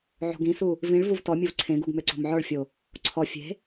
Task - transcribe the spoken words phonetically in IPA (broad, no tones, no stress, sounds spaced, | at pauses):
ʕ o̤ ɡ ĩ s u | v ĩ ɭ v u v t ɔ mʲ u v ǀʰ ẽ ɡ u ɡ m ø ǀ o̤ m ʕ ɔ ɭ fʲ o | ǀʰ ɔ fʲ e̤